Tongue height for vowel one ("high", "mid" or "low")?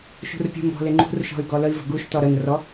high